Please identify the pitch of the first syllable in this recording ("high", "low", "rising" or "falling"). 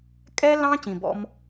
high